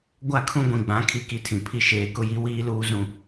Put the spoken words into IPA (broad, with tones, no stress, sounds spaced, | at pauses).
ɡʷ a˦˨ kʰ ũ˦ ɡʷ ĩ˨ ɡ͡b ã˨˦ kʰ i˦ k i˦ tʰ ĩ˨ pʰ i˦ ʃ eː˨ k ʊ˦ j i˦ w iː˦ l uː˦ z ũ˦